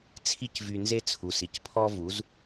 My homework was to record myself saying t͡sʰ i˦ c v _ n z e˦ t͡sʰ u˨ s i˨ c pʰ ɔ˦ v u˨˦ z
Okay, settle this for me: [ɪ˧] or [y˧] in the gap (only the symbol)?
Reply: y˧